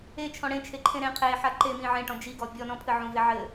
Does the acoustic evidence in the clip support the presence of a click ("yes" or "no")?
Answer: yes